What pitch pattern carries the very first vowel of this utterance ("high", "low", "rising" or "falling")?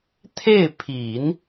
falling